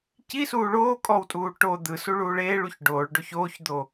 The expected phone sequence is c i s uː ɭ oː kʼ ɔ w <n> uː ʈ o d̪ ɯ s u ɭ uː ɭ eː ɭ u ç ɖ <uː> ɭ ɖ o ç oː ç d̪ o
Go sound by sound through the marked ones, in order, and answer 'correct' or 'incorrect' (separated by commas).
incorrect, incorrect